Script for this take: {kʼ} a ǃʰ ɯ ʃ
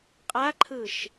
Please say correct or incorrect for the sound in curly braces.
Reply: incorrect